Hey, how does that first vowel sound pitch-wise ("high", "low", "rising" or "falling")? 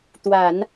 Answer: low